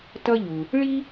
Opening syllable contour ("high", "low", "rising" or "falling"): high